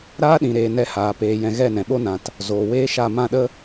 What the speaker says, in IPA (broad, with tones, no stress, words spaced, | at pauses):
ɾaː˦ɗĩ˨ɾeː˨ nɛ˧haː˨ peː˨jɛ̃˨ ɣɛ˦˨nɛ̃˨ɓo˦nã˨t | zoː˨weː˦ʃa˦˨ mã˦˨ɗə˦